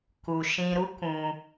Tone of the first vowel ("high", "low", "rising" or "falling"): low